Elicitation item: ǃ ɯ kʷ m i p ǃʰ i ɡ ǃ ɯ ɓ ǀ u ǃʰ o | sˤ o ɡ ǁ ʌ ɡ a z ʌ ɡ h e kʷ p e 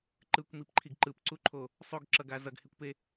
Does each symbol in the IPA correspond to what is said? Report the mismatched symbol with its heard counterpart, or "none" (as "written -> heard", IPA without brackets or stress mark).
ɓ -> p